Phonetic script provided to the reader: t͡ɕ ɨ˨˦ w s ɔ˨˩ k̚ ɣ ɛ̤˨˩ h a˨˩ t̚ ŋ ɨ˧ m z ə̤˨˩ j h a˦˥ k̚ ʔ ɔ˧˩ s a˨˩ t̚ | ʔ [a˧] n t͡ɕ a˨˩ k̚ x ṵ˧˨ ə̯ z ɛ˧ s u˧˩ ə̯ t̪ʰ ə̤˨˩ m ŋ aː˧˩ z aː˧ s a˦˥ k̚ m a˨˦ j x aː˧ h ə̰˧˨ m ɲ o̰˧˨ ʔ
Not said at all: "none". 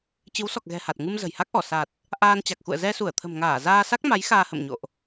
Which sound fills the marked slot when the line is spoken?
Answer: aː˧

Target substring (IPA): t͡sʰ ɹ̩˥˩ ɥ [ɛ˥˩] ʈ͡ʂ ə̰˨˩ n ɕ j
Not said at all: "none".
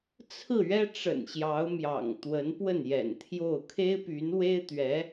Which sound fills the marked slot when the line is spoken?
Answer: ɛ˥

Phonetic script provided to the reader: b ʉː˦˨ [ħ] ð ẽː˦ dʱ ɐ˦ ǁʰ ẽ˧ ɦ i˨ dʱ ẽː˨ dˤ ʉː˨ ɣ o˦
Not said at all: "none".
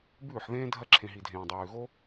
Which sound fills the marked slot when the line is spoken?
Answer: ħ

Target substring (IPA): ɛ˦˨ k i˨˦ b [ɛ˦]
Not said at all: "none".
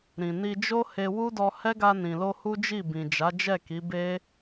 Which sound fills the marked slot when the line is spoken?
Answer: e˦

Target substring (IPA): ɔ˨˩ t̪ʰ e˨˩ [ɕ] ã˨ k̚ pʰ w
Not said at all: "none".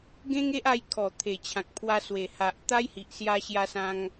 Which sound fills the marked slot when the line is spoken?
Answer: t͡ɕʰ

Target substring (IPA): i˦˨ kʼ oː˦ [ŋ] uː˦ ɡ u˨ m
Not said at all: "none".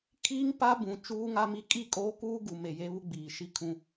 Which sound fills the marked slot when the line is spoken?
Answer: k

